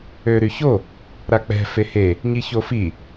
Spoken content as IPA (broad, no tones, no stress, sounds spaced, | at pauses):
ø ɾ y ç o | ɾ a k͡p ɛ̤ f e h e | ɲ i ç o f i